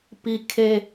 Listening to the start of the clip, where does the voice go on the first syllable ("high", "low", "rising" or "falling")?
low